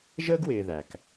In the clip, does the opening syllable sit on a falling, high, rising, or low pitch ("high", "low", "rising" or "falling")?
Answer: high